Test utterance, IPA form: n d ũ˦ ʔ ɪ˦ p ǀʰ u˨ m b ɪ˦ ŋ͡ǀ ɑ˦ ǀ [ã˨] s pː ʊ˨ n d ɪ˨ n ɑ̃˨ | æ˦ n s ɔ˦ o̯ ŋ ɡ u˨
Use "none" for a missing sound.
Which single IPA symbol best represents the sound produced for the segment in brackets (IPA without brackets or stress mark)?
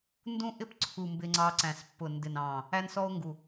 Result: æ̃˨